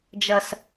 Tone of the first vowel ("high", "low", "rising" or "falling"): low